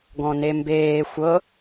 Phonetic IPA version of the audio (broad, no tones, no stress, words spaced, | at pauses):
ɡɔ̃nembeː xʷɤ